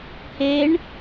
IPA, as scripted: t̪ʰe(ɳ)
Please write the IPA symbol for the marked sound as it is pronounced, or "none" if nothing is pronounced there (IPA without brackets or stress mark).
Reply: ɳ